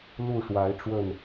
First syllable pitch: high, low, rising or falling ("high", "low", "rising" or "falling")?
falling